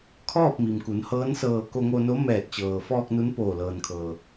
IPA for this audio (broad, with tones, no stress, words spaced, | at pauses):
kʰɔː˥˨p̚mi˩mku˩˧n hɤː˧˥nsɤː˧˩ ko˧ŋo˧no˧˥ mɛː˧˩t̚t͡ɕɤː˩fɔː˧k̚ nu˧˥npoː˧˩lɤː˩nkʰɤː˩